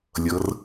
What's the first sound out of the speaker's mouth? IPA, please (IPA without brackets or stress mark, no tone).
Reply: lʲ